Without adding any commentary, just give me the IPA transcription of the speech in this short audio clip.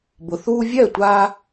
b ʊ˨ θ uː˦ vʲ ɛ˥˨ tʷ a˦

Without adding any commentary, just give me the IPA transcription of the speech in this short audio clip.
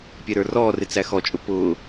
pʲ ɛ ɾ ə˞ r ɔː r ɪ t͡s æ x ɔ t͡ʃʼ ʊ p ʊː

